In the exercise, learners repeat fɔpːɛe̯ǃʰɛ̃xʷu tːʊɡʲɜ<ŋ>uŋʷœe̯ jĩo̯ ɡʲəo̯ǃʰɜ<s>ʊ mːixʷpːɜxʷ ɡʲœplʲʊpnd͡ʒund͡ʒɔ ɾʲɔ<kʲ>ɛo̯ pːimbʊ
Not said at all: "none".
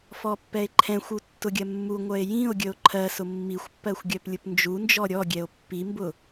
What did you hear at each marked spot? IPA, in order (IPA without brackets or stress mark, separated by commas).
mː, s, ɡʲ